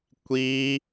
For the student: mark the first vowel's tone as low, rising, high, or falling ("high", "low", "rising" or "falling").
high